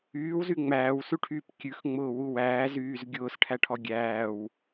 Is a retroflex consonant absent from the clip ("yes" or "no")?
no